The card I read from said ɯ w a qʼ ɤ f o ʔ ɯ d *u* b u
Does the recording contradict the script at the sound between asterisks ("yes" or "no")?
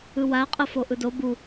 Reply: yes